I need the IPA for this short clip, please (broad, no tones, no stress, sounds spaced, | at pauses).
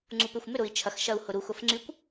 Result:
ŋ͡ǀ u p ø xʷ m ʏ ɾ ʊ i̯ t͡ʃʰ ɐ x ʃ ɐ u̯ h ʊ ɾ u x ʊ f ŋ͡ǀ y kʷ